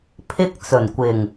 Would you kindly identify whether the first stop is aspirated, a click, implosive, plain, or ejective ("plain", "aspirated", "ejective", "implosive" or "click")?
aspirated